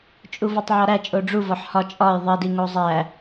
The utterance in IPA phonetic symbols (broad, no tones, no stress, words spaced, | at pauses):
t͡ʃʼuvɒtˤʕɒɾæ t͡ʃʼoɖ͡ʐu vɒħhɒ t͡ʃʼɒj ðˤidi ŋozˤæ